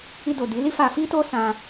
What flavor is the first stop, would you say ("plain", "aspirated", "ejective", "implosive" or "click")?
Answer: plain